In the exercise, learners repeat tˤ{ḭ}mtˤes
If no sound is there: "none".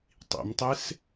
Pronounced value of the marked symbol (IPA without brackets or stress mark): ḭ